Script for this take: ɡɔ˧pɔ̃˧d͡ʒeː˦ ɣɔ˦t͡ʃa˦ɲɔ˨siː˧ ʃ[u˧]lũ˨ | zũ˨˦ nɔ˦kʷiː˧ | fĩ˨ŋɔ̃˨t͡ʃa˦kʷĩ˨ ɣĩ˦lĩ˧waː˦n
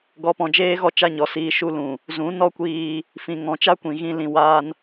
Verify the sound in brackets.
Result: correct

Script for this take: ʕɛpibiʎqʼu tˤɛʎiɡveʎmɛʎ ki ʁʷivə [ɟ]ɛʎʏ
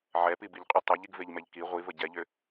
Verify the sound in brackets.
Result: correct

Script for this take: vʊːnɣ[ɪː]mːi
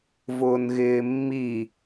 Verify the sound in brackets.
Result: correct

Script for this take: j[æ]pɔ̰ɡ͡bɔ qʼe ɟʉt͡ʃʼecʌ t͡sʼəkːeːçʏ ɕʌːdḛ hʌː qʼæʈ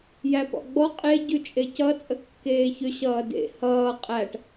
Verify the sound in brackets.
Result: correct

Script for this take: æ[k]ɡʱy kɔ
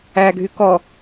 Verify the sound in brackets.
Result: incorrect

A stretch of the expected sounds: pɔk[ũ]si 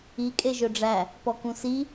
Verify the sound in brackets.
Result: correct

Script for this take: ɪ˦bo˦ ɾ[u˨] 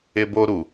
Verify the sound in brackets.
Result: correct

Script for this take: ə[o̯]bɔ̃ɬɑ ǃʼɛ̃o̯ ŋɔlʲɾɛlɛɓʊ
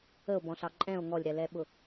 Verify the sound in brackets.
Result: correct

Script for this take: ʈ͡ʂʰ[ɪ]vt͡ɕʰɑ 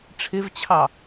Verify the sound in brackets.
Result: correct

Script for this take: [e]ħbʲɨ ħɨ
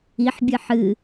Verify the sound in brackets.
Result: incorrect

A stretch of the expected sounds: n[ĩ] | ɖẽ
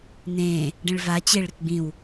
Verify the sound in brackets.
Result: incorrect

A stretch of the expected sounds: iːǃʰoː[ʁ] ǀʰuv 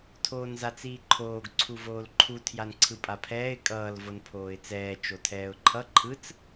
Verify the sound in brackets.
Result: incorrect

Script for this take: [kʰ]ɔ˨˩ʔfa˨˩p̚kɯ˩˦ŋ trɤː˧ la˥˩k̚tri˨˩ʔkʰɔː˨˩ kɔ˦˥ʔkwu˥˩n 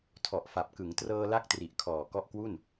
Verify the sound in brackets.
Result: incorrect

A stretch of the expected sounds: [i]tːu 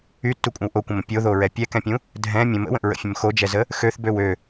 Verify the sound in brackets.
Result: incorrect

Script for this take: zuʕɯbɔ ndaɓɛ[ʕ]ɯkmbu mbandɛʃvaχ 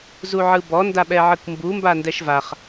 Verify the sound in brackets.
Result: correct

